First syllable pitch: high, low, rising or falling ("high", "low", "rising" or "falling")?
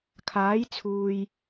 rising